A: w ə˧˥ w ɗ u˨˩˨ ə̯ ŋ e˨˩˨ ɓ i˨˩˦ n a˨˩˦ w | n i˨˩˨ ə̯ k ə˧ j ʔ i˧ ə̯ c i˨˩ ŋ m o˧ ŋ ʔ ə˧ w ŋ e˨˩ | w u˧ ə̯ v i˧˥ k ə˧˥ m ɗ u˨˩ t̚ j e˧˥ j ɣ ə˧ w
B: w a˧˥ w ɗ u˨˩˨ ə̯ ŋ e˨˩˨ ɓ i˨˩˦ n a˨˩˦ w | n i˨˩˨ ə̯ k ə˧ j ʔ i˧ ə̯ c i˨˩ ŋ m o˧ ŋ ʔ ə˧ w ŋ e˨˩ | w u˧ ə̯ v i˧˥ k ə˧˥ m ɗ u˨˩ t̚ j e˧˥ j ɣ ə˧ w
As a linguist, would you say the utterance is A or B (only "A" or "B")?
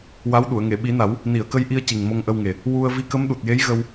B